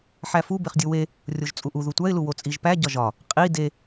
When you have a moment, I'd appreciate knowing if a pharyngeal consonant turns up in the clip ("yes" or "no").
yes